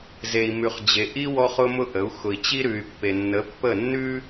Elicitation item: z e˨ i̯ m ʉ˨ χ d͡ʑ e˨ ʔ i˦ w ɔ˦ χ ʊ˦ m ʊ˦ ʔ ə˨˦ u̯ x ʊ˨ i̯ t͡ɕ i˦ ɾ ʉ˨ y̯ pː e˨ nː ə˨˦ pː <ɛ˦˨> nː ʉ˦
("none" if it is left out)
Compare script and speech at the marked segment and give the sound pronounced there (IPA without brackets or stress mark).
ə˦˨